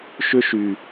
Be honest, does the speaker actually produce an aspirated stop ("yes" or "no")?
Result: no